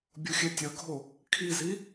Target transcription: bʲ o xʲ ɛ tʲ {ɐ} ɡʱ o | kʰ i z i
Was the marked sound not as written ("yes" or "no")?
no